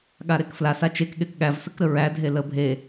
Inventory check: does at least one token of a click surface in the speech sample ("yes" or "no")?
no